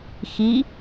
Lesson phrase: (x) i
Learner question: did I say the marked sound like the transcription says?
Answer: yes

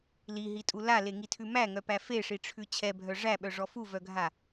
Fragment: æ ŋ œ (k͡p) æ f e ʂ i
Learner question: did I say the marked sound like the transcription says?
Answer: no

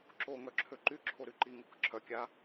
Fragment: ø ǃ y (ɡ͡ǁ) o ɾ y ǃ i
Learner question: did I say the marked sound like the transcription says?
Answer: no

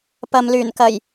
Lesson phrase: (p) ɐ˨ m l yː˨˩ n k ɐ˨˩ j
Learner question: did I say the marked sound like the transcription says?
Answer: yes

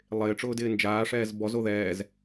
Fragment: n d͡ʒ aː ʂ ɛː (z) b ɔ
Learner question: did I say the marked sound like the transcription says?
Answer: yes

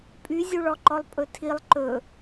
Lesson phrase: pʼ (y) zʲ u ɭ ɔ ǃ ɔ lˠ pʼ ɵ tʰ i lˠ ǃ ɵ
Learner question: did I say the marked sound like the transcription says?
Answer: yes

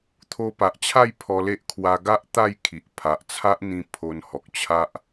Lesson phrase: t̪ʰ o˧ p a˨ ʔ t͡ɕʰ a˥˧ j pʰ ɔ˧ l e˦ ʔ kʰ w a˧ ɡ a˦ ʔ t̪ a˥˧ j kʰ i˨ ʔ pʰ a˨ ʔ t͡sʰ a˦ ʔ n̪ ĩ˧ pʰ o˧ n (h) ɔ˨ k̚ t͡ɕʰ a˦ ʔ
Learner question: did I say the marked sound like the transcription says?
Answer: yes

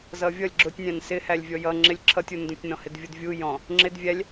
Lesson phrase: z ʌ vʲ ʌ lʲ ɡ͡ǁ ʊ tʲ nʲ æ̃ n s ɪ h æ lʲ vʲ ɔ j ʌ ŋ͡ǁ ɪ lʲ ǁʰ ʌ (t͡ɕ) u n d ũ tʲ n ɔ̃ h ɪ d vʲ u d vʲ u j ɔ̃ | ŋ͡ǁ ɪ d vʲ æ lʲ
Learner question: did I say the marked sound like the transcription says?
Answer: no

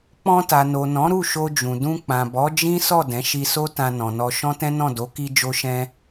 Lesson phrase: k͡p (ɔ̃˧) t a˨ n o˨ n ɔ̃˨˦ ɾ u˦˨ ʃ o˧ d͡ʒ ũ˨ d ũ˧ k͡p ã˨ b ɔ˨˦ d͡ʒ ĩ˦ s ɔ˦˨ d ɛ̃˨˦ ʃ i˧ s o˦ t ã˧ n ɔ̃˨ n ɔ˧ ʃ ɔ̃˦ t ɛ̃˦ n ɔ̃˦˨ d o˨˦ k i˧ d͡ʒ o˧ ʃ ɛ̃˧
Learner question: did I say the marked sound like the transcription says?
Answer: yes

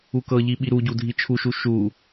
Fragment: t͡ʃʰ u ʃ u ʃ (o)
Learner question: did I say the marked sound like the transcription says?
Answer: no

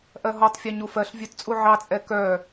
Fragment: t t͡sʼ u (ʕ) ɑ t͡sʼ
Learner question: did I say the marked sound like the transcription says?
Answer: yes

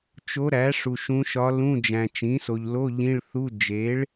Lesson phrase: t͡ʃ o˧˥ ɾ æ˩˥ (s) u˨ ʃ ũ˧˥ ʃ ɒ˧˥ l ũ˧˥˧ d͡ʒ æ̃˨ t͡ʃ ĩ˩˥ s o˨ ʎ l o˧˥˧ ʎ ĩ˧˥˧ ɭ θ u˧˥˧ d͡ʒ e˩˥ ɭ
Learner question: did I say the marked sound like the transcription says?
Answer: no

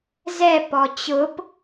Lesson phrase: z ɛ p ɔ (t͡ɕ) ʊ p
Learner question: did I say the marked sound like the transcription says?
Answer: yes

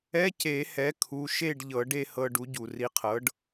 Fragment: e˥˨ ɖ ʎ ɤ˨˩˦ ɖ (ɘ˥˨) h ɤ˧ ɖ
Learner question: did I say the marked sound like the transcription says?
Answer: no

